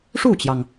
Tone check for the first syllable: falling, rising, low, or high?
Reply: falling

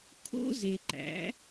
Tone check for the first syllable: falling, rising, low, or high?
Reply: high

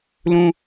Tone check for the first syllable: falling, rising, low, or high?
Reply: high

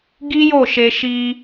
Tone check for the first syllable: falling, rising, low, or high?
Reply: high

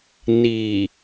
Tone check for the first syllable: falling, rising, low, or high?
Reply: low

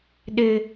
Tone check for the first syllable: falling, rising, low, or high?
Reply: low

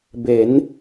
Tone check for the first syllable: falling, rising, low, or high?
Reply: rising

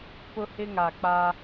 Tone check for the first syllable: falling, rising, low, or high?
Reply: high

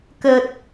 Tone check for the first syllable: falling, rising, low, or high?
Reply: low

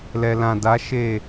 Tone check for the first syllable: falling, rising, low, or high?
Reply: low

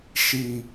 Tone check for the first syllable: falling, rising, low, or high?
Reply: low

